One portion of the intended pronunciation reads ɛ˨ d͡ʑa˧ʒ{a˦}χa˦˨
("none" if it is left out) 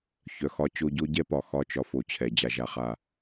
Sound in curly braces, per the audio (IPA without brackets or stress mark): a˧